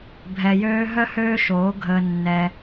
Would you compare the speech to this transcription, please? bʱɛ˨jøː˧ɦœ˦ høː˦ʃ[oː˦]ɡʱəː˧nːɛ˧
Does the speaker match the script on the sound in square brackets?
no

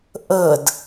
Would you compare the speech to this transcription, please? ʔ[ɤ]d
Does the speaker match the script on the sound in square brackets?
yes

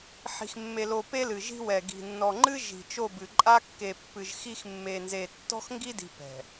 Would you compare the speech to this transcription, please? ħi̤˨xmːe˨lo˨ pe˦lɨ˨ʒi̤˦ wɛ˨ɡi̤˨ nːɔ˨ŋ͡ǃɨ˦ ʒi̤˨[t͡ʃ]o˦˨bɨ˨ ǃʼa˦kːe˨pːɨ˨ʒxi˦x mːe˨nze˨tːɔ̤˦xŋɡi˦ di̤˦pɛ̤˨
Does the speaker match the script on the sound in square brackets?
yes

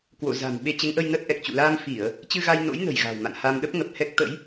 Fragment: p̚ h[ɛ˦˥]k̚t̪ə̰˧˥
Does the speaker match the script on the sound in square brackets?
yes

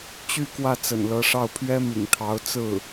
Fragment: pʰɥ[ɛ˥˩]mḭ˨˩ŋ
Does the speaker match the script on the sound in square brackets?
no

